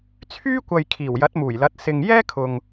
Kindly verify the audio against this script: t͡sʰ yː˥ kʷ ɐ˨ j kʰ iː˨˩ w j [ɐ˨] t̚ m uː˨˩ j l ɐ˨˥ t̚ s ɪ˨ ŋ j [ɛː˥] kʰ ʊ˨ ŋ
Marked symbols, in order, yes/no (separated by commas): no, yes